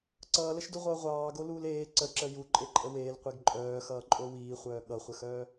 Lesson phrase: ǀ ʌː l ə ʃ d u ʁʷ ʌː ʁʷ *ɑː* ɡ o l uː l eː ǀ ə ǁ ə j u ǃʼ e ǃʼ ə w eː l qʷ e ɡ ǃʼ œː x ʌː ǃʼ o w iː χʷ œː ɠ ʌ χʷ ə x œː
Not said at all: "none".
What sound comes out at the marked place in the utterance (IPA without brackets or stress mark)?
ɑː